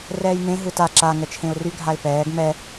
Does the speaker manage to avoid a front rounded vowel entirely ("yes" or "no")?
no